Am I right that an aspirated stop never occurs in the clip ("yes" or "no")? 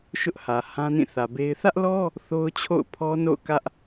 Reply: no